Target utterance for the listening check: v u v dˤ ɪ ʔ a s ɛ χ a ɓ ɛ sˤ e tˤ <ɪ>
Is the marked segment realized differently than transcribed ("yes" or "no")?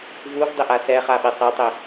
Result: no